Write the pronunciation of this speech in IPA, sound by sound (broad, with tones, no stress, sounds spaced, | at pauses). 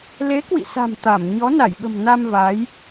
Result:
l e˨˦ k w ḭ˧˨ s a̤˨˩ m t̪ a˧˩ m ɲ ɔ˨˦ n a˧˩ j ɓ ə̤˨˩ m n a˧ m v a˨˦ j